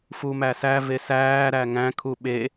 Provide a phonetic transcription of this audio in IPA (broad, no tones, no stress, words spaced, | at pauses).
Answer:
fumæsæ vesæː ɾæŋæ̃ kʰuɓe